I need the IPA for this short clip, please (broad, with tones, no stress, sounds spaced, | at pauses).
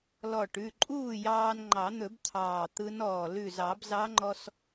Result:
l ɔ˧˩ ʈ ʉ˩˧˩ ǃʼ uː˥˩ j ɑː˧ n ŋ͡ǃ ɑ˨˩˦ n̪ ɵ˨˩˦ b t̪ʰ ɑː˧˩ t̪ ɯ˧˥ n ɔː˧˩ l ʉ˧˩ z ɑ˨˩˦ b z ɑ˧˥ ŋ͡ǃ ɔ˧ s